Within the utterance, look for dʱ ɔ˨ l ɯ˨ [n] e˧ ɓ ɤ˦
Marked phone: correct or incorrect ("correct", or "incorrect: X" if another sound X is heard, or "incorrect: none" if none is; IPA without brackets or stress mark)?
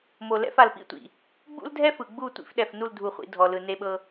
correct